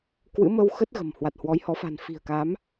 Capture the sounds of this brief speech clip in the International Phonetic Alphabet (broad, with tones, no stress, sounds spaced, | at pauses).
k w ɨ̰˧˥ m ə˧ w x ə˦˥ t̚ ɣ ə̤˨˩ m h w a˨˩ t̚ h w ɔ˨˦ j h ɔ˨˦ f a̤˨˩ n f i̤˨˩ ə̯ k a˨˦ m